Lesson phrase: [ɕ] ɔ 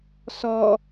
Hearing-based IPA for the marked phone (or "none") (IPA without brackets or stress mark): s